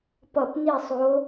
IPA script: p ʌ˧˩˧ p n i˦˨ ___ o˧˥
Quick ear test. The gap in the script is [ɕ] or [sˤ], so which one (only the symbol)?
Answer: sˤ